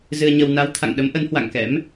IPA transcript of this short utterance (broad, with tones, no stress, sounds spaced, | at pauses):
z ɨ˧ ə̯ ɲ ə˧ w n a˨˦ w t̪ʰ a̰˧˨ ŋ ɗ ə˨˦ m ʔ ə˨˦ n h w a̰˧˨ ŋ k ɛ̰˧˥ m